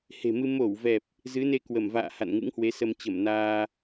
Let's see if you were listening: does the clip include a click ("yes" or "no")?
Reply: no